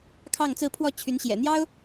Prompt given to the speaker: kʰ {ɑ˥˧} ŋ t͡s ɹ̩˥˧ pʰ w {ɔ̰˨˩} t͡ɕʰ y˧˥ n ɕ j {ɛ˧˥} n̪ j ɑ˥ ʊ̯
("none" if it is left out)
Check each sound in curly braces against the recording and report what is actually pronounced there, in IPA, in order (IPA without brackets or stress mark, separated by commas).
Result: ɑ˥˧, ɔ˥˩, ɛ̰˨˩